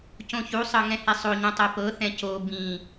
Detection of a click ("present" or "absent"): absent